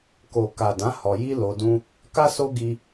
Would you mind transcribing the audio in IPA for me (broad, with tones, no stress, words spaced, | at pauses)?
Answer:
ko˨ka˨dã˨˦ hɔ˧ji˦ lo˧dũ˦ | ka˦ so˦ɡi˧